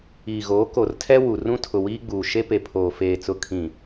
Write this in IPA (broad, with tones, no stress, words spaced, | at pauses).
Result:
iː˨ɣoː˨˦ ko˨rtʰɛ˦ wu˨ rũ˦tʰʊ˨ wiː˦ɡ͡buː˨ ʃe˦pe˨pʰoː˨ feː˨t͡sʊ˨ kʰĩ˨